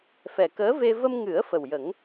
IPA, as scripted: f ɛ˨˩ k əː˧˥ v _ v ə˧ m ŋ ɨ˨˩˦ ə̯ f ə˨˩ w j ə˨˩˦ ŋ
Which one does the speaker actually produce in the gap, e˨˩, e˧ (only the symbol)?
e˧